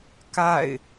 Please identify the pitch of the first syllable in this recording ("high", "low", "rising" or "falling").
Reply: falling